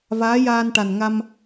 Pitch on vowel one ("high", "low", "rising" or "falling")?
rising